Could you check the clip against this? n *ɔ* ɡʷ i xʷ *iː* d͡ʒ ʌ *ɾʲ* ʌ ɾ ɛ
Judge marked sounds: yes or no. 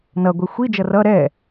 no, no, no

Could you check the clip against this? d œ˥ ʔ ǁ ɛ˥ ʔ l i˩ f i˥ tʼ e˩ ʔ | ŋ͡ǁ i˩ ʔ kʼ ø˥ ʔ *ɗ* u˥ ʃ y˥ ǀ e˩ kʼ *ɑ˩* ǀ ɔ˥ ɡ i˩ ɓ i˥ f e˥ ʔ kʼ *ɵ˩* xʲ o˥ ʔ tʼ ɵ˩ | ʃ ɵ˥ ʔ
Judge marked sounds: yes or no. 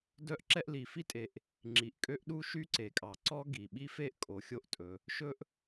yes, yes, no

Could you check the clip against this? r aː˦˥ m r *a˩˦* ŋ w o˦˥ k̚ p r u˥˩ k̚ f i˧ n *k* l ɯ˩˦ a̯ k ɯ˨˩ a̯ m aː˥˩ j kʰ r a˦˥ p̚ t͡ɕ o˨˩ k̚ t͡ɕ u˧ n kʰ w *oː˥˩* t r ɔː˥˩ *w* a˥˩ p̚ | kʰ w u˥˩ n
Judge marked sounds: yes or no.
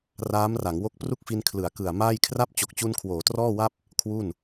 yes, no, no, yes

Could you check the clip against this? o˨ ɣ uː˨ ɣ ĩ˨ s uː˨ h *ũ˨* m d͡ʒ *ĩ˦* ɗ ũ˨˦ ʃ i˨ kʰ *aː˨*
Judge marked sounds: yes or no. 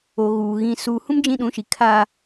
no, yes, no

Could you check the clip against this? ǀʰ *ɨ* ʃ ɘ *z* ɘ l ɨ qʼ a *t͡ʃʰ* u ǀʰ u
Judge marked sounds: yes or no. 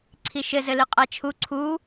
no, yes, yes

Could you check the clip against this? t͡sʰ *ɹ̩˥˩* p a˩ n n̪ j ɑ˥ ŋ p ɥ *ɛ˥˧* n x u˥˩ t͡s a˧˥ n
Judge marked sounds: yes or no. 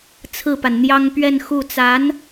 yes, yes

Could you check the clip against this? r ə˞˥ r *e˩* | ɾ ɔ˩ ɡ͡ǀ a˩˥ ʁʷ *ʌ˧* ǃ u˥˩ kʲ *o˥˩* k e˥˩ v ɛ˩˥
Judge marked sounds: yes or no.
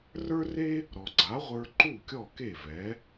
no, no, no

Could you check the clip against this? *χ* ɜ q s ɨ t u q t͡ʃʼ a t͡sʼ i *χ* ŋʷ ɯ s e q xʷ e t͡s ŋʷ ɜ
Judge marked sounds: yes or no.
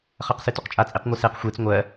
yes, no

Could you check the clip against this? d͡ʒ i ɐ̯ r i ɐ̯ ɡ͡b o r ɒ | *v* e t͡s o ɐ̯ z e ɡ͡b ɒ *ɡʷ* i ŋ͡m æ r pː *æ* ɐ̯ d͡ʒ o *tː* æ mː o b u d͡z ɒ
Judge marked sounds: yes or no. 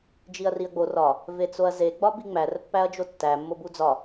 yes, no, yes, yes

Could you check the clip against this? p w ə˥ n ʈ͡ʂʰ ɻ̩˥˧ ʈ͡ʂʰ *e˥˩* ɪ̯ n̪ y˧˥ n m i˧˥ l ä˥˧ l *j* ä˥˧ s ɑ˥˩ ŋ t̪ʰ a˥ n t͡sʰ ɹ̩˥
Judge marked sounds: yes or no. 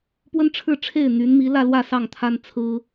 yes, no

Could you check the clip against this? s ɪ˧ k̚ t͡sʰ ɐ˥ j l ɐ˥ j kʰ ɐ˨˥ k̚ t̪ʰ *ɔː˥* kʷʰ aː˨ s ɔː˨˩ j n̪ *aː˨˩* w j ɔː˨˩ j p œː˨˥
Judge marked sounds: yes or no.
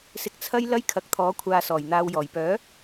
no, no

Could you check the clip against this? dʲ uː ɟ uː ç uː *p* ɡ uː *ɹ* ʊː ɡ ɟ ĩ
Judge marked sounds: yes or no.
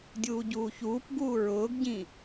yes, yes

